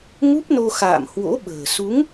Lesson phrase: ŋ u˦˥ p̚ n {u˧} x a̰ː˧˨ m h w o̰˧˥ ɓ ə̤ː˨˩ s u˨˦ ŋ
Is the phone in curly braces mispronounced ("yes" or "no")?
yes